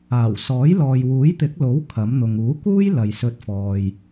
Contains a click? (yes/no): no